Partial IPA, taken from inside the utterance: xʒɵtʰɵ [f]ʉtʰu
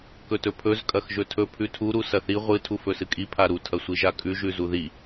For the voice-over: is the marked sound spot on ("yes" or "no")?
no